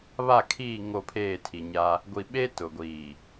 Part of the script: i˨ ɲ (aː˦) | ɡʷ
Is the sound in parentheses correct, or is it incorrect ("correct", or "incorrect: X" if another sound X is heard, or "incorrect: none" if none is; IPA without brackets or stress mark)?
correct